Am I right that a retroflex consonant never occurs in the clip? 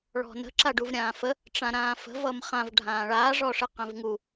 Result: no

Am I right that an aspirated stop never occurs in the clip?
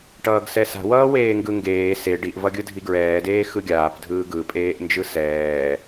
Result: yes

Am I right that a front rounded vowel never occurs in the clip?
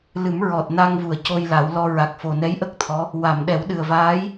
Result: yes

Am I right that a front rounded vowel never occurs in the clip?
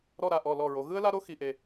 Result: yes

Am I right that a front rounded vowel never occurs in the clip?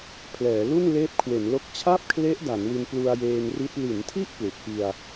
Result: yes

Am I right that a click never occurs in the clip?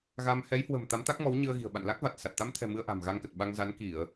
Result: yes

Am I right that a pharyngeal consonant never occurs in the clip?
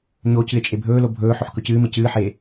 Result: no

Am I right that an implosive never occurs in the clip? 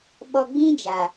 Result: no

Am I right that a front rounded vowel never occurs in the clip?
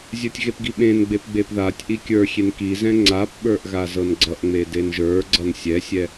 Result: yes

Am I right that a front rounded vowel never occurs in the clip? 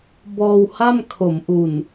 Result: yes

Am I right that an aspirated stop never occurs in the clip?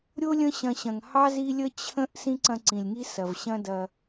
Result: no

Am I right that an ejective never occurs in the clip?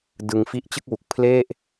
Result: yes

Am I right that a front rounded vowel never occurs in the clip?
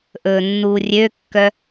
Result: no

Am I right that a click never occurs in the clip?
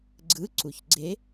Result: no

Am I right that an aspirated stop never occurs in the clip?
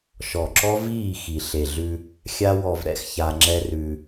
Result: yes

